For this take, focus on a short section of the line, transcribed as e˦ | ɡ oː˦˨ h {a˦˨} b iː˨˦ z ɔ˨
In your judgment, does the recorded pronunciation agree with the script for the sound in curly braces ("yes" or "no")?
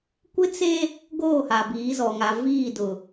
no